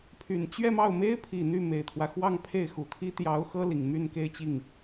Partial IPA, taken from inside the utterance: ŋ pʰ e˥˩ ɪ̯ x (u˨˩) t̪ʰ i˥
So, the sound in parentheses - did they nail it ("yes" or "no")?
yes